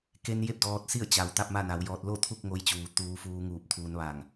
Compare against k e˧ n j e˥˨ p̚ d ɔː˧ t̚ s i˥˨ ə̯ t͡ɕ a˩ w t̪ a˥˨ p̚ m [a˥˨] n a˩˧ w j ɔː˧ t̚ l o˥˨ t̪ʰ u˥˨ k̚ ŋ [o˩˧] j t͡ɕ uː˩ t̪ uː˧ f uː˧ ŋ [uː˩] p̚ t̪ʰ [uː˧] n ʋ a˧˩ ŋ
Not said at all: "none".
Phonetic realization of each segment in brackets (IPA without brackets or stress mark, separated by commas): a˥˨, o˧, uː˧˩, uː˧